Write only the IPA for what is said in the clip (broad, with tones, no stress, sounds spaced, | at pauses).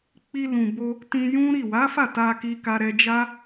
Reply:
k͡p i˧ l ũ˨ b o˧ | t ĩ˧ j ũ˦ ɾ i˦˨ w a˨˦ f a˦˨ t a˧ k i˧ k a˧ ɾ ɛ˧ d͡ʒ a˦